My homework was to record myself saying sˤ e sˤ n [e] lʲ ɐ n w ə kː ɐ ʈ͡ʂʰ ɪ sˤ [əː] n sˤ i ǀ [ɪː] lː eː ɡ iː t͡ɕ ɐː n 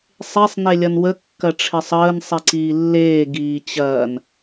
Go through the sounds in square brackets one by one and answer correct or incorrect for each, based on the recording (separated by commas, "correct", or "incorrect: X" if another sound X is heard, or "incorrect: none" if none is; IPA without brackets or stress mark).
correct, correct, incorrect: iː